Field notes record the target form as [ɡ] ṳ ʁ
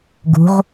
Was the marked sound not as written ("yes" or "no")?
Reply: no